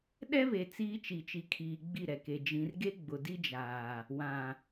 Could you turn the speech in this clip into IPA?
ɗ ɛ˦ β e˨ t͡s iː˦ t͡ʃ i˨ t͡ʃ i˨ kʰ iː˨ ɡ͡b i˦˨ ɾ ɛ˨ k e˨ d͡ʒ ĩ˨ r ɡ e˦ ɡ͡b ʊ˨ d i˦ d͡ʒ aː˨ | w ã˨

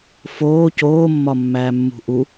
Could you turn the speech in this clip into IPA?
f oː c oː mː ɒ mː æː mː ṳ ʔ u

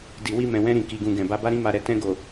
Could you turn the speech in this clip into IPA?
d i˨ w i˧ m ɛ̃˨ w ɛ̃˧ ɾ ĩ˨ k i˨ ɡ ũ˨ ɡ ɛ̃˨ b a˧ b a˦ ɾ ĩ˦ m a˧ ɾ ɛ˧ t ɛ̃˧ ɡ o˨

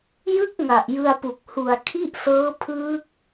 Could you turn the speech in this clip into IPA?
j ɯ˥˩ k̚ ŋ a˨˩ ʔ j ɯ˧ a̯ p u˨˩ k̚ h u˨˩ a̯ kʰ i˥˩ ʔ s ɤː˦˥ pʰ ɯː˦˥ k̚

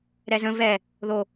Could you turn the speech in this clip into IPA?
ɾ ɛ z ə̃ v ɛ | ð o

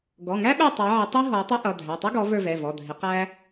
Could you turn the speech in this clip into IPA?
ɡ ɔ˩˧˩ ŋ æ˥ ɓ ɛ˦˨ tˤ ɑ˨˦ ʕ ɪ˨˦ tˤ i˥ ɦ ɔ˨˦ tˤ ʌ˥ ʔ ʌ˩˧˩ dʱ æ˩˧˩ tˤ ʌ˥ ɡ ɔ˨˦ v ə˞˦˨ v ɛ˩˧˩ v ɔ˩˧˩ dʱ ɪ˨˦ q æ˥

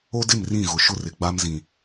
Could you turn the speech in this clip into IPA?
o˦ d ɪ˦˨ m r ĩ˦˨ ɣ ʊ˨ ʃ ʊ˦ r ɪ˨ ɡ͡b a˦ m z ĩ˨

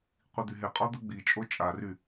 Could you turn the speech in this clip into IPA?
qʷ i d̪ y ɦ e qʼ ɔ d̪ ə ɡ͡b i t͡ʃʼ o t͡ʃʼ a r y

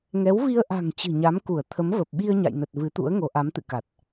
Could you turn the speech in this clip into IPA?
ŋ ɛ˨˦ w v i˧ ə̯ ʔ a̤˨˩ ŋ t͡ɕ ɨ̤˨˩ ɲ a˨˦ m k u˧˩ ə̯ t̪ʰ ə˨˦ m v ə˨˩ p̚ ɓ i˧ ə̯ ɲ a̰˧˨ j n ə˨˩ t̚ v ɨ˨˦ t̪ ṵ˧˥ ə̯ ŋ o˨˦ ʔ a˨˦ m t̪ ɨ̰˧˨ k a˨˩ t̚

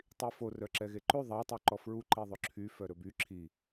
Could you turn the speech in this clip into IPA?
tˤ i f o r œ ǁ ɛ ɣ e ǃ ʉ ðˤ ɑ tˤ u ǃ ɔ f ɹ u ǃ e ðˤ ɵ ǁʰ y f œ ɾ ɵ b y ǁʰ i

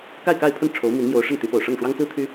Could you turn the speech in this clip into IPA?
k a˥˧ ɪ̯ k a˥˧ ɪ̯ pʰ ə˥˩ n ʈ͡ʂʰ o˧˥ ʊ̯ m i˧˥ n m j o˧˥ ʊ̯ ʂ ə˥˩ n t̪ y˧˥ p o˨˩ ʊ̯ ʂ ɤ˥˩ ŋ ʂ w ɑ˥ ŋ t͡s ɹ̩˥ t̪ʰ y˥

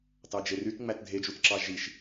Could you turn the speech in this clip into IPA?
t ɑ d͡ʒ e r y t ŋ͡m æ t dʱ e d͡ʒ u t ǁ ɑ ʒ i ʃ

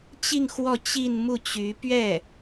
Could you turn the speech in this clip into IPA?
t͡ɕ i˥˧ ŋ x w ɔ˥˧ t͡ɕ i˥˧ n m u˥˩ t͡ɕ y˧˥ p ɥ ɛ˥˩

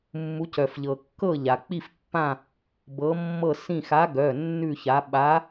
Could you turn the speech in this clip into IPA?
mː u˨˦ c œ˩ f ʎ ɤ˩ kː ɤ˦˨ ʎ a˩ k͡p i˦˨ f pː ã˦˨ | b ɤ˨˦ mː ɤ˦˨ s ĩ˦˨ x a˨˦ ɡ œ˩˧˩ nː ʉ˦˨ ç a˨˦ ɓ a˨˦

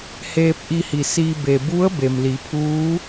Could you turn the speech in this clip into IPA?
h eː˧ p̚ ʔ i˧ h i˩ s iː˧ b e˩ b u˧˥ ə̯ b e˩ m l i˩˧ pʰ uː˧˥

